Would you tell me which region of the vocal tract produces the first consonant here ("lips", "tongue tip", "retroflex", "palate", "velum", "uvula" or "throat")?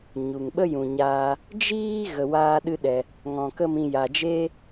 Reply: palate